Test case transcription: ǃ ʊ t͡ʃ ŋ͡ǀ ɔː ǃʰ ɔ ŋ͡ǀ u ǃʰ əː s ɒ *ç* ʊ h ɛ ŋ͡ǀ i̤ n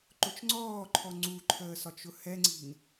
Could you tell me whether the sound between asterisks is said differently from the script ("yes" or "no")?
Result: yes